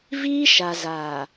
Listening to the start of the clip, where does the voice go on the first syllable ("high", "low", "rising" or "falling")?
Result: high